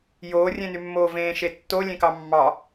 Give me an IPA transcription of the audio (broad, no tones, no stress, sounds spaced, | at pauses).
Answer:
j oː rʲ ẽ n y mː oː v ẽː ʃ e tː o lʲ ẽ k ɑ mː ɑ